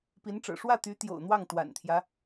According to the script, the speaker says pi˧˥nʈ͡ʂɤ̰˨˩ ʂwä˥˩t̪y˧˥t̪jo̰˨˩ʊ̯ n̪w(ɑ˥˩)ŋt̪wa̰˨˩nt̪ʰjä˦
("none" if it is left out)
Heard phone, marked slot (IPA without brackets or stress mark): ɑ˥˩